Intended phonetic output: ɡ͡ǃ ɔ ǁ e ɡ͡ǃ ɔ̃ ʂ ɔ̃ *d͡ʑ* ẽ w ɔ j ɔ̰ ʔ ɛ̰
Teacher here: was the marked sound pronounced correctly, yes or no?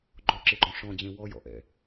yes